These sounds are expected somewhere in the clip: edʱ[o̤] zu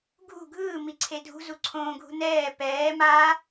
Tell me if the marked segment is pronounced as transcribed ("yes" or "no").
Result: no